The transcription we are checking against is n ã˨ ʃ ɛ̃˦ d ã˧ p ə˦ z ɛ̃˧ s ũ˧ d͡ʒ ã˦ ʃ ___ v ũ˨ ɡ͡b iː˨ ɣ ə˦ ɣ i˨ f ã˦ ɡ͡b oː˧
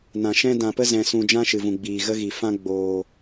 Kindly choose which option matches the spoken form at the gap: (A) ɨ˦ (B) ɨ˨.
B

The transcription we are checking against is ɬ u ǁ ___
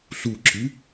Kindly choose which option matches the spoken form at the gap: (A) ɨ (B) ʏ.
A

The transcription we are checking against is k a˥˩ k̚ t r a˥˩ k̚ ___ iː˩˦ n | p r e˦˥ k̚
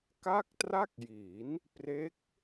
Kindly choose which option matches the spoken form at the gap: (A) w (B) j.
B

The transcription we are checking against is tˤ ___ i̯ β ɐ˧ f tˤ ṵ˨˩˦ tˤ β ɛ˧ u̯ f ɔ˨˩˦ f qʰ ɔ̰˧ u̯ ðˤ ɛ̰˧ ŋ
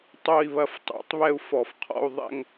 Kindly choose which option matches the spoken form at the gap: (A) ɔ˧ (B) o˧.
B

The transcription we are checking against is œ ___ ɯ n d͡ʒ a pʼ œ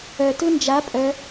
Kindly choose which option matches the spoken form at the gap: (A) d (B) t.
B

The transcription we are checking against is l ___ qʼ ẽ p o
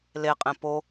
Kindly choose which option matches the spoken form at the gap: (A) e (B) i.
A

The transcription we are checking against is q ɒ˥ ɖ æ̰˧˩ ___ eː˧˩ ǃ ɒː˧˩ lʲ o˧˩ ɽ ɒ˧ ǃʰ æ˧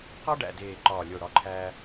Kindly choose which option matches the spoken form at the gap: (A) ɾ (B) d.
B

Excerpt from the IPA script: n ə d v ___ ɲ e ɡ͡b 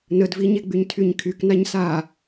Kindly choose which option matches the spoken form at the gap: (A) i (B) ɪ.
A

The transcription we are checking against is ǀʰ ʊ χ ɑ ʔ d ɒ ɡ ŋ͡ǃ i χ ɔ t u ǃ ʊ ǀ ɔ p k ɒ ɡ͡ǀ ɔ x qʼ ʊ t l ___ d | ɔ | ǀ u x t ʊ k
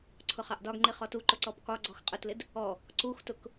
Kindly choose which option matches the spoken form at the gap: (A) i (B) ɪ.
B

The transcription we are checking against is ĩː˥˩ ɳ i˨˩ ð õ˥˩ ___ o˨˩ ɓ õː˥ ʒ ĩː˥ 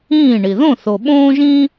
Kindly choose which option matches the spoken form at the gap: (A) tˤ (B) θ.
B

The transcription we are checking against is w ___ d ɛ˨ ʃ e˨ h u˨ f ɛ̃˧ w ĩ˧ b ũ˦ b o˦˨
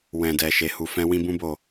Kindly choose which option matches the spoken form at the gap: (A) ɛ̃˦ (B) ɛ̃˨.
B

